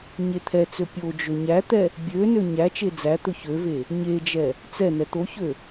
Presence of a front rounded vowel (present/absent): present